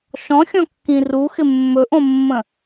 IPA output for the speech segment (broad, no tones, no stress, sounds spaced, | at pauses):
ʃ ɔ̃ xʲ ɔ̃ kː ĩ r u x ɪ mː ɵ ʔ õ mː ə̃